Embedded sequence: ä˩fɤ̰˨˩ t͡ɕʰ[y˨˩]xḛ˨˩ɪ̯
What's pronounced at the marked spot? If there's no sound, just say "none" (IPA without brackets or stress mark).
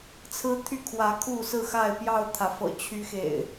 y˦